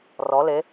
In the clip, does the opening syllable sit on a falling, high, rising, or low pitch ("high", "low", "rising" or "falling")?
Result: rising